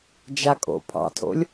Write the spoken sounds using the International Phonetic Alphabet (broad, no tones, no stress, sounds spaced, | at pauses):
d͡ʒ a kʼ o̰ pʰ ɑ̰ tʰ o̰ lʲ